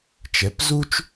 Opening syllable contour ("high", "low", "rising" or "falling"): rising